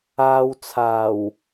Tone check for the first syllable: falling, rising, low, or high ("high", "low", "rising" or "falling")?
low